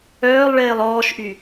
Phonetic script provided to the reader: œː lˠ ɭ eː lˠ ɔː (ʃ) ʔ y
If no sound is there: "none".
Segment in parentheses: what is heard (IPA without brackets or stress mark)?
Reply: ʃ